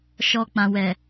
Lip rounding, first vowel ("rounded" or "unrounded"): rounded